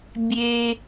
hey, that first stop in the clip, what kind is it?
plain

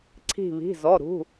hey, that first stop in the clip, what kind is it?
click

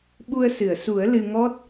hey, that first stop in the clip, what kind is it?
implosive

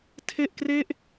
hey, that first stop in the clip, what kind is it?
aspirated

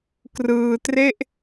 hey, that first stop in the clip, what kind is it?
plain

